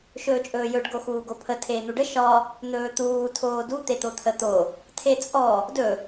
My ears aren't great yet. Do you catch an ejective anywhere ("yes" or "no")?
yes